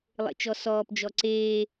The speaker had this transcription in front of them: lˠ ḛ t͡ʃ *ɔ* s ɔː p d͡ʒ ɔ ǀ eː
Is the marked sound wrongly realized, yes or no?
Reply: no